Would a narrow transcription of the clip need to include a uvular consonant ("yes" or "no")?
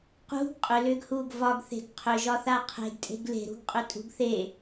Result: yes